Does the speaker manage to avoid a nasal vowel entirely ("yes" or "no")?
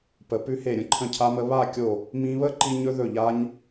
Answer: no